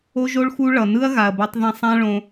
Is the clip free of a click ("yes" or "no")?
yes